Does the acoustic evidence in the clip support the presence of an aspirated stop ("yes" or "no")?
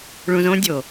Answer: no